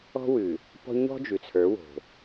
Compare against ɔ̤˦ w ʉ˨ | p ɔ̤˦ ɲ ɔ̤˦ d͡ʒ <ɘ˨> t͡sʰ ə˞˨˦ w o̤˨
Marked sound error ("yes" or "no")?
yes